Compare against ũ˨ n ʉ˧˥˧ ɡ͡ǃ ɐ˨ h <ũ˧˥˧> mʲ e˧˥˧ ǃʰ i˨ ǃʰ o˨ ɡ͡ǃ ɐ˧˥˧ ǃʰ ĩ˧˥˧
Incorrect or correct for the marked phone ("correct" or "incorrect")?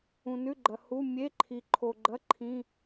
incorrect